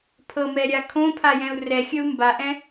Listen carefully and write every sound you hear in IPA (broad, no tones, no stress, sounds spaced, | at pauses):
pʰ ɤ m ɛ ɾʲ a kʰ õ pʰ a j ɛ̃ u̯ r ɛ xʲ ə u̯ m b a ʔ ɛ̃